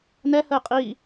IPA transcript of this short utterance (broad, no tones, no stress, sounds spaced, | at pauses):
n ɛ h ə ɪ̯ qʼ i